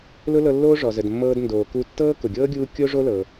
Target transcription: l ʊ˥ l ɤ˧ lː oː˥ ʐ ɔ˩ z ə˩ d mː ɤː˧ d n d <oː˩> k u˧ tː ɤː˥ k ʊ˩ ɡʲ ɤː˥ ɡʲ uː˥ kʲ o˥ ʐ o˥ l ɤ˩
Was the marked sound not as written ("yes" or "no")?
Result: no